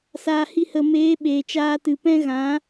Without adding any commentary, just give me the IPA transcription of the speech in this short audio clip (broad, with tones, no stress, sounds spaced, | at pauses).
s aː˨ h i˧ h ə˨ m eː˨˦ ɓ eː˨ t͡ʃ aː˧ t ɨ˨ p ɛ̃˦ ɣ ã˨˦